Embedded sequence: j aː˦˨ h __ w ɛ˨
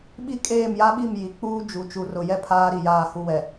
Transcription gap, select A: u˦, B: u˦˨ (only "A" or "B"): B